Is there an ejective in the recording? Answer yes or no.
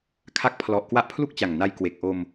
no